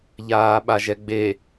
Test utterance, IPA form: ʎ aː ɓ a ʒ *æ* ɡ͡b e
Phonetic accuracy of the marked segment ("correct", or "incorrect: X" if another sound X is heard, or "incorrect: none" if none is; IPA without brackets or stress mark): incorrect: ɛ